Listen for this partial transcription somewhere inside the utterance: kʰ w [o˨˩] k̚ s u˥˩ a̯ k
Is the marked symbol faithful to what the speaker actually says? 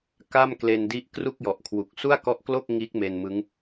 no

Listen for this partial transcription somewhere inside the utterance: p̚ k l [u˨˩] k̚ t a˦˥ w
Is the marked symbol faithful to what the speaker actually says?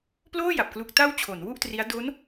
yes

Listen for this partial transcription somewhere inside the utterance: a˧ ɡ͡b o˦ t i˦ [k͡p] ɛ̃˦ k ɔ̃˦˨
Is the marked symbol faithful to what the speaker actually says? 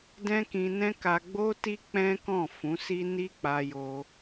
yes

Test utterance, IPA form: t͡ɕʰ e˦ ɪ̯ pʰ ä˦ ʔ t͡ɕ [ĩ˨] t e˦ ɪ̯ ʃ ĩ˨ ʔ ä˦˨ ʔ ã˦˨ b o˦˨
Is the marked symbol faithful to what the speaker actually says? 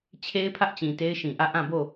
yes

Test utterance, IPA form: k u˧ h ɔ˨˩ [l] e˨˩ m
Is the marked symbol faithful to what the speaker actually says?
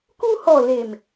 yes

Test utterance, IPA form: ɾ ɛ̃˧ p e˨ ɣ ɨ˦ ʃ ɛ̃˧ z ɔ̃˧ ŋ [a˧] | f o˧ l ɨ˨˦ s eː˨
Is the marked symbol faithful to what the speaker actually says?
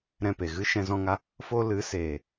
yes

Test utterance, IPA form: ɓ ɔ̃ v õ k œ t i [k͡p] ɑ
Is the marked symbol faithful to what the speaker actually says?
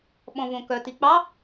yes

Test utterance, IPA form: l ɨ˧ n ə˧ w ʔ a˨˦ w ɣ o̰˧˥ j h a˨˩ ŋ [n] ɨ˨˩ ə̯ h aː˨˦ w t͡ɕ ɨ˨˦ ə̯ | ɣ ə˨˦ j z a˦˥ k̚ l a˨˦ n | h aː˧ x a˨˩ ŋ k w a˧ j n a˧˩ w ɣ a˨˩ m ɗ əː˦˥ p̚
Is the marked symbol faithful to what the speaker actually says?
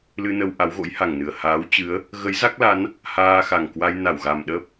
yes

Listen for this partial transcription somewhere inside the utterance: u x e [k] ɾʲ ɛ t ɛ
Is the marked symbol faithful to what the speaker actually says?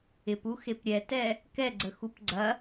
no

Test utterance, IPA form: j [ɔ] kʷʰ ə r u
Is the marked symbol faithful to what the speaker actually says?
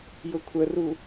no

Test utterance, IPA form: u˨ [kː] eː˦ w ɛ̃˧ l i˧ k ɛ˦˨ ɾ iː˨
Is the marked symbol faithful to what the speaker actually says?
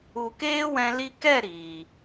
no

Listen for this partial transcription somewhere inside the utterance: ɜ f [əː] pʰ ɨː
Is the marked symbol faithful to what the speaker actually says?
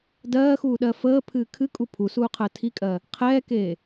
yes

